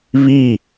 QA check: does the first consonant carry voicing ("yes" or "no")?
yes